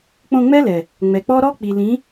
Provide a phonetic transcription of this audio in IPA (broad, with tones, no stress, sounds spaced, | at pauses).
k͡p õ˧ ŋ͡m ɛ˦ l ɛ˨ | ŋ͡m ɛ˨ k͡p ɔ˦ ɾ ɔ˦ k͡p i˨ l ĩ˨˦